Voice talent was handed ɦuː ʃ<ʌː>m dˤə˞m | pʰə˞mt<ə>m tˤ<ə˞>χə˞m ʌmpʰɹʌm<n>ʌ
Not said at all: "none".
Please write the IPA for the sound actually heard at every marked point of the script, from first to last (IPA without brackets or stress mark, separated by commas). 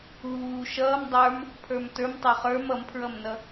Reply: ʌː, ə˞, ə˞, n